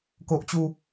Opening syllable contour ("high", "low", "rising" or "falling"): high